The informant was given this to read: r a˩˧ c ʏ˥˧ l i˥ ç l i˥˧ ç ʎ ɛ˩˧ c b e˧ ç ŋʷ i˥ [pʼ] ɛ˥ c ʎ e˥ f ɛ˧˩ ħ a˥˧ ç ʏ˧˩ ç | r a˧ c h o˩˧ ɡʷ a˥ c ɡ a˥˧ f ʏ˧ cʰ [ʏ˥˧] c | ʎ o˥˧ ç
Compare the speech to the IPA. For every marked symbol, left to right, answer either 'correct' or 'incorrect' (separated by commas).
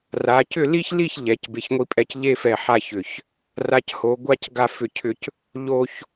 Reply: correct, correct